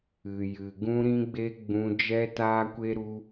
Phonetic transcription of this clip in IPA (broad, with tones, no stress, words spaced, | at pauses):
ɨ˧jɨ˧ɡũ˦ ɾĩ˦ɡ͡be˦ ɡ͡bũ˦ d͡ʒɛ˦taː˦kʷe˦ɾu˦